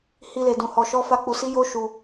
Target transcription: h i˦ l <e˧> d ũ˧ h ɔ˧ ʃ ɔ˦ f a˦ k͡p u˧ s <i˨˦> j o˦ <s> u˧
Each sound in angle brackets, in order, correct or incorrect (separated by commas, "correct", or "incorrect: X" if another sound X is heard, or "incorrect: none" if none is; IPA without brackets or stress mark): correct, incorrect: i˦, incorrect: ʃ